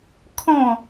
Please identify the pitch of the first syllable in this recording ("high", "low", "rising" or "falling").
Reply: falling